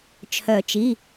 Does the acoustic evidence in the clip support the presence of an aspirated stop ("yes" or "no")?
yes